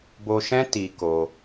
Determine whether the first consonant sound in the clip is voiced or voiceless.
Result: voiced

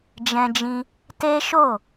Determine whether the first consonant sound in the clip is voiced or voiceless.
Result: voiced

